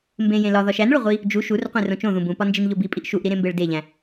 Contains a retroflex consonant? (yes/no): yes